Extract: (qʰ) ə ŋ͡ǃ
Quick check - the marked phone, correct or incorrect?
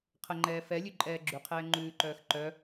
correct